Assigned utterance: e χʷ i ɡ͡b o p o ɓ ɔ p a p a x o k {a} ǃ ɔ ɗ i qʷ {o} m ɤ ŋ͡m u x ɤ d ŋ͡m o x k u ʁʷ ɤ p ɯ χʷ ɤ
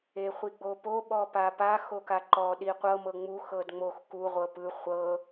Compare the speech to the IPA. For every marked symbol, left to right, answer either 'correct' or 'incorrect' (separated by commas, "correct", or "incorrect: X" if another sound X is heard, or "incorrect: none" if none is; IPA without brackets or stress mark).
correct, incorrect: ɤ